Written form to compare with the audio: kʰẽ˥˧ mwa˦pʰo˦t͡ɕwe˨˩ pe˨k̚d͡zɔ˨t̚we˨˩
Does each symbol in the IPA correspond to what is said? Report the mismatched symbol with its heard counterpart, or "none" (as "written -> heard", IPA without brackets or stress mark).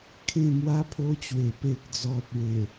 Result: none